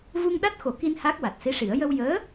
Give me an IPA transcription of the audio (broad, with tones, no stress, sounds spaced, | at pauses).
v u˧ ŋ ɗ a˦˥ t̚ x o˨˩˦ k i˧ n h a˦˥ k̚ w a˨˩ t̚ s i˧˥ ʂ i˨˩˦ ə̯ j ə˧ w j əː˧˥